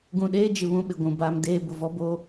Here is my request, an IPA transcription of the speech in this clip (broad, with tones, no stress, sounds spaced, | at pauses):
ɡ ũ˨ ɗ eː˦ d͡ʒ ɪ˨ β ũ˦ ɓ ɪ˨ ɡʷ ũ˨ b aː˦ m d eː˦ b ʊ˨ v ɔ˦ b o˦